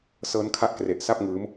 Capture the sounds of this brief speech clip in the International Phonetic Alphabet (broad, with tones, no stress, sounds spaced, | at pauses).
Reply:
s ɤː˦˥ n kʰ a˦˥ ʔ k r e˨˩ ʔ s a˥˩ p̚ ŋ ɯː˦˥ m